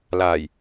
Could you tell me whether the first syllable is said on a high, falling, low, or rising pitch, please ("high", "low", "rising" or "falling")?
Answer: low